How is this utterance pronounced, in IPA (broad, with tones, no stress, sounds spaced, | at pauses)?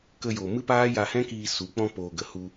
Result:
k ə˧ j o˨ m ɨ˦ p aː˦ j a˧ h ɛ̃˦ k iː˧ s u˨˦ k͡p ɔ̃˧ p oː˨ ɡ ə˨ h u˧